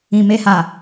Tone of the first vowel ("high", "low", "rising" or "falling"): low